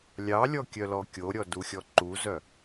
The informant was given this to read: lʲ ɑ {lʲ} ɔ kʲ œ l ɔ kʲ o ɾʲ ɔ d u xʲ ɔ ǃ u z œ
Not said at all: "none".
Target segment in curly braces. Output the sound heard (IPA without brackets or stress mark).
lʲ